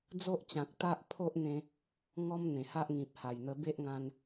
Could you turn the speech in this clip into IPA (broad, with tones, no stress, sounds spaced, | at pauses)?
d͡z o˦ ʔ t͡ɕ ã˨ k̚ t̪ a˦ ʔ pʰ o˦ ʔ n̪ ẽ˧ | ŋ ɔ˦ m n̪ ẽ˨˩ h a˦ ʔ ŋ ĩ˨ p̚ h a˨˩ j n̪ ə˧ b e˦ ʔ ŋ ã˧ n